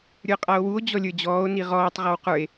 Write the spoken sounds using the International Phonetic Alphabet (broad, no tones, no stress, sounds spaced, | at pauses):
ɾʲ ə˞ qʼ a o̯ w u o̯ d͡ʑ ɔ lʲ ə˞ d͡ʑ ɔː o̯ n i ʁ ɔː tˤ ʁ ɔ w q ə˞ e̯